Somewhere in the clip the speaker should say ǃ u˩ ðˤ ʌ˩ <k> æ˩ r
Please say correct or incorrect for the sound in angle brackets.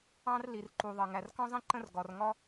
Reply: incorrect